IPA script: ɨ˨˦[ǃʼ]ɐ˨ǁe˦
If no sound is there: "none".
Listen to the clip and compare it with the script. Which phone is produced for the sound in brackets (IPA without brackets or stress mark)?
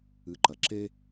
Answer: ǃ